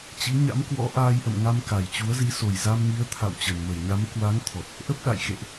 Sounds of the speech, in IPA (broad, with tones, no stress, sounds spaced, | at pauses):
t͡ɕ ḭ˧˥ ɲ a̰˧˥ m k w ɔ̰˧˥ ʔ aː˧ j ʔ ə̰˧˨ m ŋ a˧ m k a˨˩ j t͡ɕ u˨˦ ə̯ z i˨˦ s o˨˩ j z a˧ m ŋ i˨˦ ə̯ t̪ʰ a̰˧˨ w t͡ɕ ə˨˩ n m ə˧˩ j ɲ a˨˦ m k w a˨˦ ŋ t̪ʰ ɔ˨˩ t̚ | ʔ ə˦˥ p̚ ɗ a̰˧˨ j x ḛ˧˨ ʔ